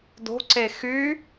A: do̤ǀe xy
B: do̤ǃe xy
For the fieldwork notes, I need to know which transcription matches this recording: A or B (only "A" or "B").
A